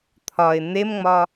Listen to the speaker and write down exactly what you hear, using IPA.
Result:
t̪ʰ ɒ ɪ̯ n̪ e m ŋ͡m ɒ

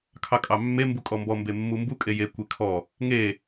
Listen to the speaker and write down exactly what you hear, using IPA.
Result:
kʰ ɑ kʼ ɑ mː e m b u kʼ ɔ m b ɔ m b e mː u m b u kʼ e j e kʷ e kʰ ɔ | ŋ e

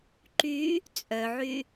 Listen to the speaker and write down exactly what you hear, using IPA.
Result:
ǃ y | t͡sʼ œ ʕ y

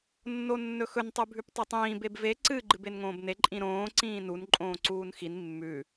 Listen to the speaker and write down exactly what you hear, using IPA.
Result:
nː o nː ɵ x ɵ n tˤ ʉ bʱ ʉ p tˤ i tˤ ĩː b e b v e ǀ ɨ ɡ͡ǃ ɨ b e n ŋ õː b n e ǃʼ ĩ ɾ õː ǀ ĩː n u n ǃʼ õː ǀ uː n x i n mː ʉ

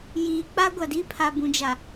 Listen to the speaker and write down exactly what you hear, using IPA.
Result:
j iː˨ k͡p a˦ ɡʷ a˨ d i˦ pʰ a˨ b ũ˨ d͡ʒ a˨

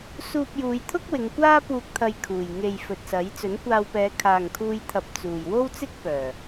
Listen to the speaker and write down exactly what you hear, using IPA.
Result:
s uː˧ p̚ j uː˨˧ j t̪ʰ ʊ˥ k̚ w ɪ˨˧ ŋ kʷ aː˥ p uː˨ k̚ t̪ʰ ɐ˨ j kʰ uː˨˩ j ŋ e˨ j f ɵ˨ t̚ s ɐ˨˥ j t͡s ɵ˨˥ n kʷ aː˧ w p ɛː˨˧ kʰ aː˨ ŋ kʰ uː˧ j t̪ʰ ɐ˨ p̚ t͡s uː˨˩ j w o˥ w t͡s ɪ˥ k̚ p œː˨˩

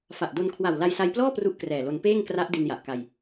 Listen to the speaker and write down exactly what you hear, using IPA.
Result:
f a˨˩ ʔ d o˧ n kʰ w a˨˩ w l a˧ j s a˧ j p l ɔː˥˩ p r u˥˩ ʔ k r ɛː˨˩ l o˧ n p eː˥˩ ŋ k r a˦˥ ʔ d i˧ n j a˨˩ ʔ k a˧ j

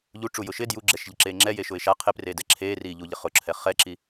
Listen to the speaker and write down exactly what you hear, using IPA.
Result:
ʎ u ʈ͡ʂ u j ʊ ʃ ɪ d j u ɡ͡ǁ ɛ ʃ ʎ ɪ ǁ eː ŋ͡ǁ ɛ j e ʃ ʊ ɪ̯ ʃ a qʰ ɪ p r e d ɛ ǁʰ eː r iː ʎ u ʎ ɪ χ ʊ ǁʰ ɛ χ ɛ ǁ i

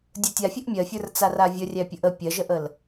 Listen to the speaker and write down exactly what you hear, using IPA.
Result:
dʲ ə˞ tʲ a fʲ ə ʔ mʲ ɜ fʲ ə˞ r t͡s a r a vʲ ə rʲ æ pʲ ə ʔ ə pʲ ɜ ʒ ə ʔ ə l

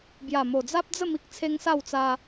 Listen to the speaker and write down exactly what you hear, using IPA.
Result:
b j a˨˩ m o˨˩ d͡z a˦ p̚ d͡z ə˥˧ m i˦ k̚ t͡sʰ e˦ ŋ s a˥˧ w t͡s a˧

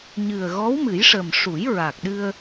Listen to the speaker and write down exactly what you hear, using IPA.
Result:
ɲ ɨ˨˩ ə̯ ɣ ɔ˧˥ w m ɨ˨˩˦ j ʂ ə˨˩ m ʂ u˨˩˦ j ɹ a˨˩ k̚ ɗ ɨ˧ ə̯

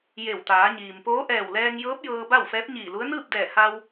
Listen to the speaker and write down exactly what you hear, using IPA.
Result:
j e˧˩ w t̪ aː˩˧ ɲ iː˩ m p oː˧˥ ʔ ɛː˧˩ w l ɛː˧ ŋ j ɤː˧˥ p̚ j ɤː˧ b a˥˨ w f ɛː˧˥ p̚ ɲ iː˧˩ l u˧˥ ə̯ n ɯː˥˨ p̚ d ɛː˧˩ h a˧ w

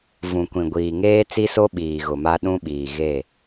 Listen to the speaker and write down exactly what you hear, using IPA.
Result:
v ũ˨ kʷ ĩ˨ ɡʷ iː˨ ŋ eː˦ t͡s i˦ s o˦ ɓ iː˨ ɣ ʊ˨ m a˦ ɗ ũ˦ ɓ iː˨ ɣ e˦˨

